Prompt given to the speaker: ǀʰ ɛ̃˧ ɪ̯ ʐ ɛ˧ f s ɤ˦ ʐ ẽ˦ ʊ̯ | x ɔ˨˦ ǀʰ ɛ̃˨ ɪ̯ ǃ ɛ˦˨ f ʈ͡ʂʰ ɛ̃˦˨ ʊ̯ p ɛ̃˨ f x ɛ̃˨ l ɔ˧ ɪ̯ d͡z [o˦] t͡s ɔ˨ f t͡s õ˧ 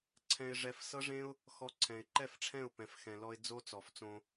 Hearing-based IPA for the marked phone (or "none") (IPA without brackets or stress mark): o˦